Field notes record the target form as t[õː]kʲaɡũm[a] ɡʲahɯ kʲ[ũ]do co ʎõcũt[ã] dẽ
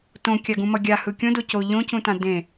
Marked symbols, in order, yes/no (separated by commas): no, no, no, yes